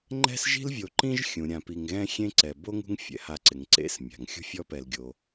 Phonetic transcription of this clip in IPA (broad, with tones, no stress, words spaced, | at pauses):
ŋ͡ǃɛ̤˥sʒi̤˥lvʲo˨ ǃĩ˥ʒxʲũ˩ ɾʲã˨pi˨ŋɣɛ̃˥ xʲẽ˥ǀɛ˩ bo˥ŋṳ˦ŋ fʲɛ̰˩ha˨ǀɪ˩ŋ ǀḛ˦s mʲa̤˩ŋxʲṳ˥fʲɔ˥pɛ˨l ɡʲo˩